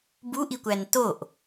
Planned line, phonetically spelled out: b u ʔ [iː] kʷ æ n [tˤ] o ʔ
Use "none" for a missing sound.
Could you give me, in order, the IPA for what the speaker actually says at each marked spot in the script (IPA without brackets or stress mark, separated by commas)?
i, t